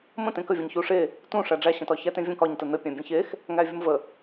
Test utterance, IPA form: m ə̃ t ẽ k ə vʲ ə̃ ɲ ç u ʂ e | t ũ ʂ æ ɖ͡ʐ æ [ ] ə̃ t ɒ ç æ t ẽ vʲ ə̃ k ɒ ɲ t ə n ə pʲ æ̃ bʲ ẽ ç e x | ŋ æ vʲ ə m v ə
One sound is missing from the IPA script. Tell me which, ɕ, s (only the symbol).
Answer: ɕ